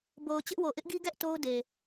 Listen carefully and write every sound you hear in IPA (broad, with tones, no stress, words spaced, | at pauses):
bo˨ʊ̯ t͡ɕɪ˦ʔwo˨ ʔɪ˦ʔɡi˦ɡɛ˦ʔ to˦ʊ̯de˨